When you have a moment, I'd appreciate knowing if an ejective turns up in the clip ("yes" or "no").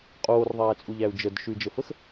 yes